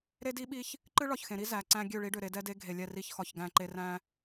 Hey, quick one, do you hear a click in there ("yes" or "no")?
yes